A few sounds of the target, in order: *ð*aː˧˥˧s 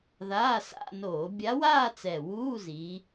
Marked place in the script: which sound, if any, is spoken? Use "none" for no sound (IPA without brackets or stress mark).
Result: ð